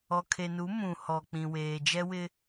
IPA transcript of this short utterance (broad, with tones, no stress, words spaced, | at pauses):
ɔ˨kʰe˨nu˨˦ mũ˨ hɔ˨k͡pĩ˨weː˨ d͡ʒɛ˦wɪ˦